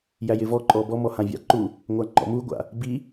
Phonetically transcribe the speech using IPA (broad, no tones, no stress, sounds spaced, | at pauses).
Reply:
j æ j ɪ v ɔ ǃʼ ɔ b ɔ m ɔ h ã vʲ a̰ ǃ u | ŋʷ a ŋ͡ǃ ɔ̰ m u ɡʷ a̰ | b i